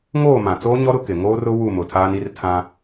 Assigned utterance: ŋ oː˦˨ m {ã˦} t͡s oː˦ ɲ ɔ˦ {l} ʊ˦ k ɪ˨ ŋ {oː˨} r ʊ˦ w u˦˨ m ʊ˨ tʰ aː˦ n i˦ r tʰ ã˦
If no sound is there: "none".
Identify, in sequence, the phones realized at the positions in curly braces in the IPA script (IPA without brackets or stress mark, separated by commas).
ã˨, ɾ, oː˦